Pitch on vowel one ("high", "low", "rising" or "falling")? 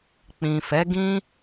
low